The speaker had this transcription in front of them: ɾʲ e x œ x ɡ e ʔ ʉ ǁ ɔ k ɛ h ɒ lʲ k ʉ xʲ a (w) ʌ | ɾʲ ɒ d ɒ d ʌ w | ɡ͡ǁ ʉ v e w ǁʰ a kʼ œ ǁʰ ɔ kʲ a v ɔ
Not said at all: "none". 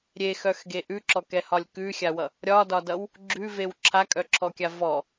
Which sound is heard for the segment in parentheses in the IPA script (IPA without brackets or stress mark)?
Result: w